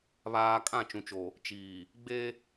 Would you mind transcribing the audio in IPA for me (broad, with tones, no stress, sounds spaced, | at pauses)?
β aː˦ kʼ ã˦˨ t͡ʃ ũ˨ t͡ʃ o˨ | t͡ʃ iː˨ | ɡ͡b e˦